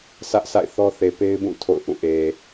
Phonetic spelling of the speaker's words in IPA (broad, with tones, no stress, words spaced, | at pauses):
sä˦ʔsa̰˦˨ɪ̯θɔ˦ θe˨pe˦ɪ̯bũ˦˨ tʰo̰˦˨ʊ̯ ʔũ˦˨ʔe˨